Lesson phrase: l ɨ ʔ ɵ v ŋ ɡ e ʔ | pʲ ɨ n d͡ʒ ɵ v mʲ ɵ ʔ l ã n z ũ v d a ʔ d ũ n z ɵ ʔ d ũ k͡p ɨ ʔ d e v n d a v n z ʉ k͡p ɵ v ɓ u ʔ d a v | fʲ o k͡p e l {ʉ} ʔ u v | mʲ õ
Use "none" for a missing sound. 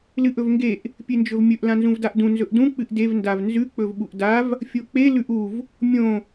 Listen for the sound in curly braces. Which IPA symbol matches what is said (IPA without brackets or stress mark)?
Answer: ʉ